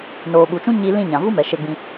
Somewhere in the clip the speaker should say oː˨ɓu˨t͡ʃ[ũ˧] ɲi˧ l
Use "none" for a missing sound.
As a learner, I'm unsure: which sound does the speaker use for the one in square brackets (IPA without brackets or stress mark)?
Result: ũ˦